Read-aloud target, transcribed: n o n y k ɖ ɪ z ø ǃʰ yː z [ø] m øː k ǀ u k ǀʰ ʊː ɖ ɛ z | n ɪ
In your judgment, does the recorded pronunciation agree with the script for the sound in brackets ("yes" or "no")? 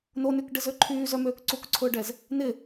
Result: no